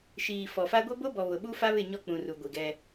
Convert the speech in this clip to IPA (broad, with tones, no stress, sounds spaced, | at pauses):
ʃ iː˨ f ɔ˨ f a˦ ɡʷ e˦ b o˦ b ɔ˨ β ʊ˨ ɓ u˦ f a˦ β ɪ˦˨ ɲ ɔ˦ k͡p ũ˨ r u˨ ɡʷ i˨ ɡ ɛ˦